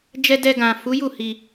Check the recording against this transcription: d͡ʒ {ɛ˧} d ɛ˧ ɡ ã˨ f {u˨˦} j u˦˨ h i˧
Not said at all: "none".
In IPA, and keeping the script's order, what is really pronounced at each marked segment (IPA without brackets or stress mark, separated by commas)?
ɛ˧, u˨˦